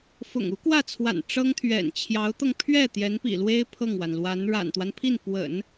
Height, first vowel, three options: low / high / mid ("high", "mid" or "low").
high